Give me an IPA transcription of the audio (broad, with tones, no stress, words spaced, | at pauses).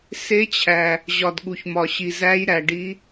se˨˦t͡ɕʰæ˩ | ʑɒ˩dɠu˩çmɒ˩ ɕi˩zæ˨˦jɾæ˩ɖi˨˦